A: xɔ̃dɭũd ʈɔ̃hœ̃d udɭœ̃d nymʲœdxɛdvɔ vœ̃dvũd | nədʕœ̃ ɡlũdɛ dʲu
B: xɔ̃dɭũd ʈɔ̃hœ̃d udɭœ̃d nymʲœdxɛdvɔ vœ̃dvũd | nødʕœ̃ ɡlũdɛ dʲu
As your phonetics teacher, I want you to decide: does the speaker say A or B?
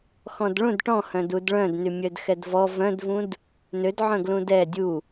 B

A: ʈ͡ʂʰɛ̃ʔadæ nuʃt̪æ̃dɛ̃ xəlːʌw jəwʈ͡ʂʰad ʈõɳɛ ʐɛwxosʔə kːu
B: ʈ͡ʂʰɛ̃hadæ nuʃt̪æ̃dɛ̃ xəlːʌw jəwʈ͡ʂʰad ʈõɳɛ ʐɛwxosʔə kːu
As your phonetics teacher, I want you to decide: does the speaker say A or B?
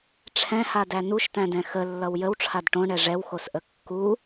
B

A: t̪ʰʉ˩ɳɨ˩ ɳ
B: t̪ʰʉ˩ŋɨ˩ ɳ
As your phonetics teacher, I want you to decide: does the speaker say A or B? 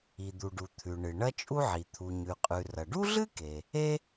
A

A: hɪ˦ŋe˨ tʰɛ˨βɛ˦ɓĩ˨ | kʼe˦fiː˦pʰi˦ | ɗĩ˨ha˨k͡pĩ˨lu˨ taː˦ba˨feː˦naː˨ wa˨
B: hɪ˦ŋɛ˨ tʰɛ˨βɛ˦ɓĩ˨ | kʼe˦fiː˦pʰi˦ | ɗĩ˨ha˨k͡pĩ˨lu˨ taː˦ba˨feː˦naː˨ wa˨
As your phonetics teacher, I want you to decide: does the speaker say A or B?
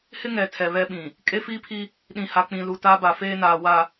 B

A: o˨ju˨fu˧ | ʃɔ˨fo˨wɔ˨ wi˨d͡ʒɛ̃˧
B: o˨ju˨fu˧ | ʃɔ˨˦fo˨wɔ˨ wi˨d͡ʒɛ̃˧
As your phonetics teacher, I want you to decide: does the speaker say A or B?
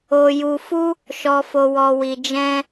A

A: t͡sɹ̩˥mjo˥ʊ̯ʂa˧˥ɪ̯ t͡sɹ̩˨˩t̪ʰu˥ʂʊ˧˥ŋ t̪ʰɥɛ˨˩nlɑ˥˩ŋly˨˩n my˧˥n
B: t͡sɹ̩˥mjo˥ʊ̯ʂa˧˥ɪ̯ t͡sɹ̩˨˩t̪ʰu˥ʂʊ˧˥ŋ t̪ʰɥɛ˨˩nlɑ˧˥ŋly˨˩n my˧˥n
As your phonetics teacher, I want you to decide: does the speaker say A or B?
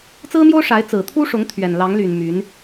B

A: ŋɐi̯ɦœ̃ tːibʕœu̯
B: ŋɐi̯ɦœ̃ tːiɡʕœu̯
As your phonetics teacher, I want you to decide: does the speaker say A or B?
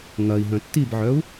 A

